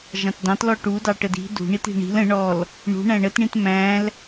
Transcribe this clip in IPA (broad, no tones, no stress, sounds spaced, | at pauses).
ʒ ɑ̃ t d ɑ̃ t l ɔ ʈ u d ɑ ʈ ə d i̤ d ṳ ɳ i t i̤ ɳ i̤ l ə̃ ɳ ɔ l | ɳ ṳ ɳ æ̃ ɳ ə t ɳ ĩ t m æ̃ l